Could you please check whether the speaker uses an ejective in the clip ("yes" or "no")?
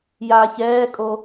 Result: yes